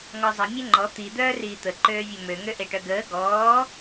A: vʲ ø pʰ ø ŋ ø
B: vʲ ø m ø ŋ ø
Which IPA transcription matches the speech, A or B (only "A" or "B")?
B